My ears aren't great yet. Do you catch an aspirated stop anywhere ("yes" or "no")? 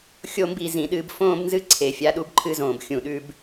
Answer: yes